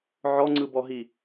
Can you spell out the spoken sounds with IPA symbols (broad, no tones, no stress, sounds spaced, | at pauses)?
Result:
ʕ ɔ ŋ͡ǀ ɯ b ɔ ɦ i